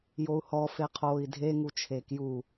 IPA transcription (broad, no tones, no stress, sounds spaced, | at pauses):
j o u̯ h ɔ f e qʰ oː i̯ dʱ e ŋ u t͡ʃʰ eː k j u